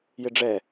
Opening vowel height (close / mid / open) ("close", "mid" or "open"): close